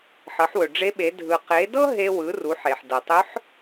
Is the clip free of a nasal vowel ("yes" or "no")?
yes